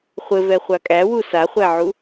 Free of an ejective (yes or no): no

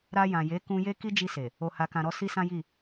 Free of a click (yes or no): yes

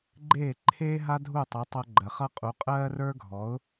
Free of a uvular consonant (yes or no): no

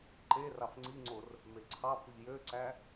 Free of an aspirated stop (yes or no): no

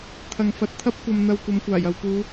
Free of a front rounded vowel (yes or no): yes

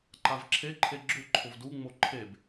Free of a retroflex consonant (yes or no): yes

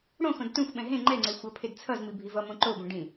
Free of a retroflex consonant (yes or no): no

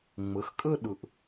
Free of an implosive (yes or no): no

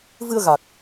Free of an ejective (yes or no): yes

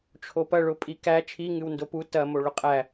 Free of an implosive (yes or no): yes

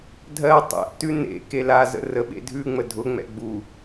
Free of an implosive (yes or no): no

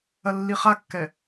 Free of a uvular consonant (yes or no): no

